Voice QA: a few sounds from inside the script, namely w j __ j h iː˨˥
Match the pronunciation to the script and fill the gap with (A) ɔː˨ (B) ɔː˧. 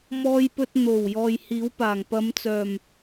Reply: A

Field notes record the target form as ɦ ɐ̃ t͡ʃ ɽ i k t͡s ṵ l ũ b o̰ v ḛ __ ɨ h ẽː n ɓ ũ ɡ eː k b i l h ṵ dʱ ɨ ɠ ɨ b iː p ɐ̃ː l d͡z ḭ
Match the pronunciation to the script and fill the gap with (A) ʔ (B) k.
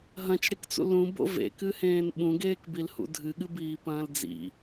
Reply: B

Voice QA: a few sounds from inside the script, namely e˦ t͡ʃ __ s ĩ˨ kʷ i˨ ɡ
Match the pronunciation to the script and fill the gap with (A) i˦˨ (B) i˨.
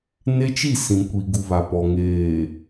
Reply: A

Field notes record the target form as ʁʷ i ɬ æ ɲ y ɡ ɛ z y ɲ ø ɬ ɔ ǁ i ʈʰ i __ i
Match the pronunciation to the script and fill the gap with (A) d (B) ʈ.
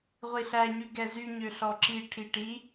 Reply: B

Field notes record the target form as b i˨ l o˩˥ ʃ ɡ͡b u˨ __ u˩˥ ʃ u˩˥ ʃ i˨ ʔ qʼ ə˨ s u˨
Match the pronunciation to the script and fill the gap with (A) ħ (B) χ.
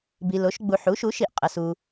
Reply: A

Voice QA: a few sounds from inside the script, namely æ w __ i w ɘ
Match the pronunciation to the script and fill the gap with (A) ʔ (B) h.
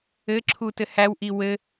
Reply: A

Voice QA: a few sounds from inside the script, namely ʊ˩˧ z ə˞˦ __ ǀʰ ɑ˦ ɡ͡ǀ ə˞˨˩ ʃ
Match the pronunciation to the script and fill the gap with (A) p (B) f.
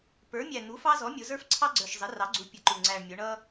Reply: B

